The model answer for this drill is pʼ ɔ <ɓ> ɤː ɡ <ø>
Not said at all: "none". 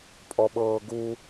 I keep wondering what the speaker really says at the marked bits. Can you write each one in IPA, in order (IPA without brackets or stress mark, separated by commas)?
ɓ, u